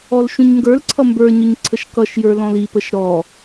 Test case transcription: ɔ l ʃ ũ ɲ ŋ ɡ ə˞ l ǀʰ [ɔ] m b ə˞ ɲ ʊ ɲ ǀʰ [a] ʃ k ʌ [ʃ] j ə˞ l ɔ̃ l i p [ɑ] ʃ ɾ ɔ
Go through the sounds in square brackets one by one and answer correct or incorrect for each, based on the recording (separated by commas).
incorrect, incorrect, correct, incorrect